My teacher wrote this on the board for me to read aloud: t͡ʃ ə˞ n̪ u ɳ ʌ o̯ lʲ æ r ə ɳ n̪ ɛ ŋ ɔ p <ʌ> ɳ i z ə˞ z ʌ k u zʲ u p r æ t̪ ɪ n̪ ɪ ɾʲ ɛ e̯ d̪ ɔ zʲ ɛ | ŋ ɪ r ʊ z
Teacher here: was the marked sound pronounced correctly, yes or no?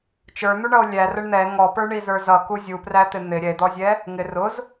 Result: no